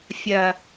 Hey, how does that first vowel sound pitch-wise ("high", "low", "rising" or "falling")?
low